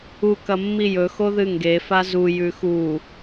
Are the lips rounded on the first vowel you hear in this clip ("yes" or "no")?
yes